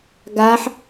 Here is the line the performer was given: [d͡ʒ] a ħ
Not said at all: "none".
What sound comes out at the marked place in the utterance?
ɡ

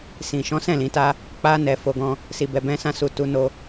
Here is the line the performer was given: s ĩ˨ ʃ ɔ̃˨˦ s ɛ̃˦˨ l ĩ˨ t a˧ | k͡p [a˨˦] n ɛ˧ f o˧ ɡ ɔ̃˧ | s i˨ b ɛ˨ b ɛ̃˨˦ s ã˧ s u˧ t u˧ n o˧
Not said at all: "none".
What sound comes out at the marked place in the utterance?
a˦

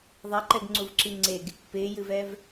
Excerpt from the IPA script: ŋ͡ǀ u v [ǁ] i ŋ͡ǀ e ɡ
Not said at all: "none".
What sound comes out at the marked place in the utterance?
ǁ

